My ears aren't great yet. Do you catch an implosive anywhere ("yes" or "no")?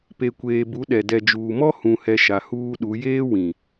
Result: yes